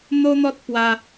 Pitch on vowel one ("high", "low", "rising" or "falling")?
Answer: high